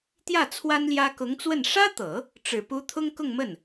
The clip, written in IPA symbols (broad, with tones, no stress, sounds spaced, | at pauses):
t̪ j ä˥˩ t͡sʰ w a˥ n l j ä˥ k ʊ˧˥ ŋ t͡s w ə˥˩ n ʂ ä˥ t̪ ɤ˨˩˦ | ʈ͡ʂ ɻ̩˨˩ p u˧˥ t̪ʰ ʊ˥ ŋ k ʊ˥˧ ŋ m ə˥˩ n